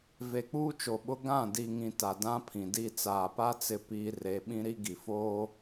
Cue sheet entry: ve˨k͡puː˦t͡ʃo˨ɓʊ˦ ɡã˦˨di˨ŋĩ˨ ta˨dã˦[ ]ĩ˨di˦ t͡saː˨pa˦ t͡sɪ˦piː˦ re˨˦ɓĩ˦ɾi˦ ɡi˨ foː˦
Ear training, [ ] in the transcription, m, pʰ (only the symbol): pʰ